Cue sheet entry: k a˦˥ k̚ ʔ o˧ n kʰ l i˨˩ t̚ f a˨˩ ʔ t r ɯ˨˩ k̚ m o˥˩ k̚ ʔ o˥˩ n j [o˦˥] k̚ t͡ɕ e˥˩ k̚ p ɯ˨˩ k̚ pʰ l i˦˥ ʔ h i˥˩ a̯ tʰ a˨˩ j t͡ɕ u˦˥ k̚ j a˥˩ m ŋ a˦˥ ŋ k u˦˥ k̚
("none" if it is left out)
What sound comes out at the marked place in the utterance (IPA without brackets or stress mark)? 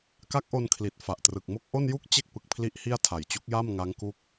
u˦˥